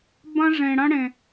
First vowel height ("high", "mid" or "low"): low